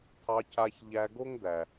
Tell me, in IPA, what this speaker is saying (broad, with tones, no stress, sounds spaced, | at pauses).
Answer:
t̪ʰ ɑ˧ cʰ a˧ ç ʎ æ˧ ɡ o˥ ŋ d̪ æ˩